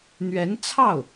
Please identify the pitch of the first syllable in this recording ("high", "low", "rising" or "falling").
rising